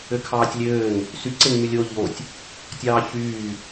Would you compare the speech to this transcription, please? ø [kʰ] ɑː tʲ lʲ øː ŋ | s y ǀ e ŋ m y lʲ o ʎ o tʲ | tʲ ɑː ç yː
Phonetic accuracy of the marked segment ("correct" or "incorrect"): correct